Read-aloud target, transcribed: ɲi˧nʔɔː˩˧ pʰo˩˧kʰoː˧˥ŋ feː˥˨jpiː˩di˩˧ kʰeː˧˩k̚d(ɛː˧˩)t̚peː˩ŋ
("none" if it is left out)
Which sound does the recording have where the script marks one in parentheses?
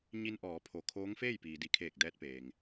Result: ɛː˧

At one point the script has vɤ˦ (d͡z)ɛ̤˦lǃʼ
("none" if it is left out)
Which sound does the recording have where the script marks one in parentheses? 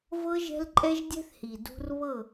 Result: ʒ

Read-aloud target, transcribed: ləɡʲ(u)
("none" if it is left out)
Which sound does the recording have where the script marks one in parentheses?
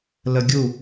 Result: u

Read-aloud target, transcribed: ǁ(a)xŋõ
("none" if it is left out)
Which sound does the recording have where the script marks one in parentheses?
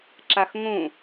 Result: a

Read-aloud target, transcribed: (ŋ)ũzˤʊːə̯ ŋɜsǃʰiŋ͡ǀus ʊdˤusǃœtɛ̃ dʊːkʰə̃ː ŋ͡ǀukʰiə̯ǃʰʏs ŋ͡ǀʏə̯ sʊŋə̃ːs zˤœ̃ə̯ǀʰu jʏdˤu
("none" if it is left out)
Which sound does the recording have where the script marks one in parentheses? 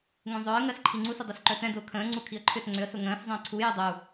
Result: ŋ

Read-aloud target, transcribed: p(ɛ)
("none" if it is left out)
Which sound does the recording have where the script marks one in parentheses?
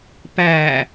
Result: æ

